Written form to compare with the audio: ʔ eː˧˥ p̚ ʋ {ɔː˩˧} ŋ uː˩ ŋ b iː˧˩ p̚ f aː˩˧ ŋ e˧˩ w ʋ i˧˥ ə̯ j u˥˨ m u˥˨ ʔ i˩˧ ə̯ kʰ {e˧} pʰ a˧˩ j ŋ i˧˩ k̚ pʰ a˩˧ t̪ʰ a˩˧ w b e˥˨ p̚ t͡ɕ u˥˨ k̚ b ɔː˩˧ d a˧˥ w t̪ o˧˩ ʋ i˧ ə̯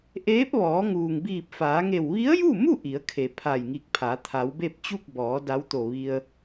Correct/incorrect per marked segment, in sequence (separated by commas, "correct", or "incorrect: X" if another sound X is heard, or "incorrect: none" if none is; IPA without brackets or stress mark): correct, incorrect: e˩